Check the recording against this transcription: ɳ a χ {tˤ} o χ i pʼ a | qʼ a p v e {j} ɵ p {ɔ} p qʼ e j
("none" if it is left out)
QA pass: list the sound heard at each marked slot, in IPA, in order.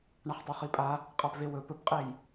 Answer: tˤ, w, ɵ

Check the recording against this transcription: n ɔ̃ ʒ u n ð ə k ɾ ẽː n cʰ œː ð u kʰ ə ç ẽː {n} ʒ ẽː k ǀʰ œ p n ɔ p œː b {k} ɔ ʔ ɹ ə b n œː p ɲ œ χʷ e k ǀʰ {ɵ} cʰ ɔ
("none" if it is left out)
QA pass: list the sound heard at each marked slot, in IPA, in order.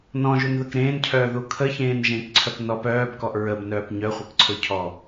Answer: n, k, ɵ

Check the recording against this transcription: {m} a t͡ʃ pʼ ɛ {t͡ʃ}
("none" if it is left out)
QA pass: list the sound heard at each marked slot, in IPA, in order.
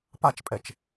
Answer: p, t͡ʃ

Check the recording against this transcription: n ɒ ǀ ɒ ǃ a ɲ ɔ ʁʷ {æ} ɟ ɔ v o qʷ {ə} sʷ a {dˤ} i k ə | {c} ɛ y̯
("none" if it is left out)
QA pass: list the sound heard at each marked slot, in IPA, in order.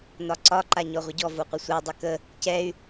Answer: ə, ə, dˤ, c

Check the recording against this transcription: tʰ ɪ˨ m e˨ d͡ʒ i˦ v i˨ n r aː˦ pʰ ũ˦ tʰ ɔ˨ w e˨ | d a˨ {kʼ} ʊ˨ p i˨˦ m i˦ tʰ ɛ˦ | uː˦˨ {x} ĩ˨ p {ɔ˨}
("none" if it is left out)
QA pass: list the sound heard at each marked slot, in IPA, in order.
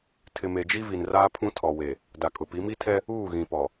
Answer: kʼ, ɣ, ɔ˨

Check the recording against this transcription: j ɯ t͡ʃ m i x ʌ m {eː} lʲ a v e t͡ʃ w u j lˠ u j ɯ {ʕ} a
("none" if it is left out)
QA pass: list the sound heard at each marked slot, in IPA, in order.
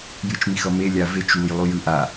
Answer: e, ʔ

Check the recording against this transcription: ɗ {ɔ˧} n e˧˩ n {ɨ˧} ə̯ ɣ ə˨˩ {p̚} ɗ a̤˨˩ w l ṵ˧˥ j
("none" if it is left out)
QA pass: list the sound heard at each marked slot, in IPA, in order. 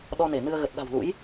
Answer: ɔ˧, ɨ˧, t̚

